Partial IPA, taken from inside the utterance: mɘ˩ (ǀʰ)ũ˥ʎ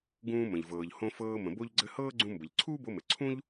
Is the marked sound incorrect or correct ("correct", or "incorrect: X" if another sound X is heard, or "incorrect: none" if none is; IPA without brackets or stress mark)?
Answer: correct